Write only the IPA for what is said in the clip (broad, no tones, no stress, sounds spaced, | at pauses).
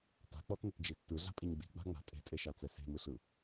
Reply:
t a̤ k͡p ɔ t n ə t d͡ʒ i tː ɯ ɮ a̤ pʼ i ɲ ɡ͡b i̤ ɡ͡b a̤ ŋ͡m a̤ tʼ e̤ tʼ e ʃ a t͡s ɛ s e̤ m ɯ ɬ ɯ